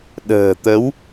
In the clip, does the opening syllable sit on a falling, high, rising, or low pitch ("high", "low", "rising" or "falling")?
low